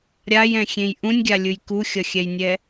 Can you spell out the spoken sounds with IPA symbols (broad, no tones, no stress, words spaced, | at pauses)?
ɾʲajɛ̃xʲẽj ʔũnʲɡʲalʲɯj kuxʲʌxʲɛjnʲɛ